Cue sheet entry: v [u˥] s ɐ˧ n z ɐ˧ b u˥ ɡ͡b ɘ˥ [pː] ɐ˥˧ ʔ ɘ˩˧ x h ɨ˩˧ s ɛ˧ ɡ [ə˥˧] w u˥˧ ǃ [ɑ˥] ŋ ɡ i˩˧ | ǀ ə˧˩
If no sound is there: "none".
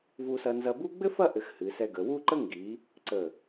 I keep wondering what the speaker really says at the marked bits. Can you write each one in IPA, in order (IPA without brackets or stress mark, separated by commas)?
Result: u˧, f, ə˩˧, ə˥